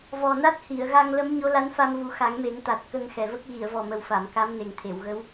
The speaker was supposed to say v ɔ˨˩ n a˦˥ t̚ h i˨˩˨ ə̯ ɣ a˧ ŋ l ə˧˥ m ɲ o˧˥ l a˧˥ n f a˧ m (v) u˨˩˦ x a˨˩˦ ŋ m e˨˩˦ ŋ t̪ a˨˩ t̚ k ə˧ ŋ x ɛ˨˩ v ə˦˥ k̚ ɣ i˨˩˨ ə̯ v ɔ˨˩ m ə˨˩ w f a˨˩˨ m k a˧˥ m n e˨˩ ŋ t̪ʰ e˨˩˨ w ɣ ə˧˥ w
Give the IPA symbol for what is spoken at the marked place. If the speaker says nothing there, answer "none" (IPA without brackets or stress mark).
v